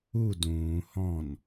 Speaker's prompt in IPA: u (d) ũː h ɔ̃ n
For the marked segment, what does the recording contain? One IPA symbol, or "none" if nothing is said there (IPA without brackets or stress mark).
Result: d